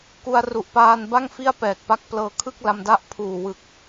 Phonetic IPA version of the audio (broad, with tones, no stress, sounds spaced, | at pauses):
k u˧ a̯ r u˨˩ ʔ p aː˧ n b a˥˩ ŋ f i˥˩ a̯ p ɛː˨˩ k̚ p a˦˥ k̚ p l ɤː˧ kʰ ɯ˥˩ k̚ l a˧ m d a˦˥ ʔ pʰ uː˨˩ w ɯ˨˩ k̚